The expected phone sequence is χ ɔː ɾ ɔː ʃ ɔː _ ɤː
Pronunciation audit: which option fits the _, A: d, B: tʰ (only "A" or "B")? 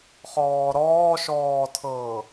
B